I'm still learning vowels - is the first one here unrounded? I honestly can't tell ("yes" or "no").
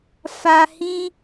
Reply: yes